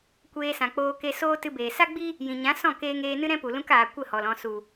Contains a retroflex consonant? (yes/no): no